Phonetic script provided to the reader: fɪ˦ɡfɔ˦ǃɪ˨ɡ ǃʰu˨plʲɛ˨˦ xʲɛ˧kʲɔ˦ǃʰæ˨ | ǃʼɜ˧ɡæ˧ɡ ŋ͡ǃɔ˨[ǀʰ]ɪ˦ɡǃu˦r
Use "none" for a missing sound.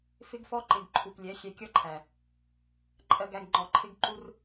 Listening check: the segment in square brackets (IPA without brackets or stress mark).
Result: ǃʰ